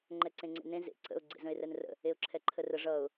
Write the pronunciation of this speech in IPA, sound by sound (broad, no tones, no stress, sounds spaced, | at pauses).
ŋ͡ǃ ɛ ǀ ẽ ŋ͡ǀ ḛ n ẽ z ḛ ǀ ə̰ ʊ̯ ɡ͡ǀ ḛ z ə̃ ɪ̯ r ɛ n r ə̰ | e ʊ̯ ǁʰ ɛ ǃʰ ə r ə ʐ ʌ ʊ̯